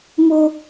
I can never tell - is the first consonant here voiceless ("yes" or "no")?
no